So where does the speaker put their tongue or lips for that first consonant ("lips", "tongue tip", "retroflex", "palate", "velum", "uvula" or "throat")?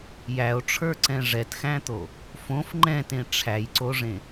palate